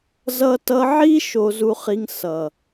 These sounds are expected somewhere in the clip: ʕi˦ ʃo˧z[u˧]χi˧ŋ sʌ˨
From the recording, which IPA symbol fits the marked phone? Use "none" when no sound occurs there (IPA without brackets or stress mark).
u˧